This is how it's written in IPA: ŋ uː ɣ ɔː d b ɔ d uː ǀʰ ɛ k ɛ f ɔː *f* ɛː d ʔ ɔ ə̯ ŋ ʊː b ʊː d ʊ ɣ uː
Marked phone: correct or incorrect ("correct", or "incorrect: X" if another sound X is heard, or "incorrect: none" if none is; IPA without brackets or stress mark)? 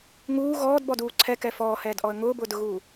incorrect: h